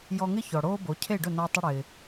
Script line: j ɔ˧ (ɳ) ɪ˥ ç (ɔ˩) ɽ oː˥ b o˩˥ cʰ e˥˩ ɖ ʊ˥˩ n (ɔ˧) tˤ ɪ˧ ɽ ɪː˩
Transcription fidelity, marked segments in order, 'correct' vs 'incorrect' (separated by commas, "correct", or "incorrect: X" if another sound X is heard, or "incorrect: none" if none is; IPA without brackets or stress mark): incorrect: ŋ, correct, correct